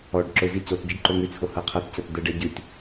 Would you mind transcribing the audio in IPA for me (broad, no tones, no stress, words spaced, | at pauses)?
ɔɖ ǁʊzi cot ɟiɖǃoŋʉt͡sʰo hɤqʰɤtcɤt d̪ɛɖɛ ɟʉt